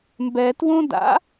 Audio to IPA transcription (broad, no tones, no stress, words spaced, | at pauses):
mbɛtwõda̰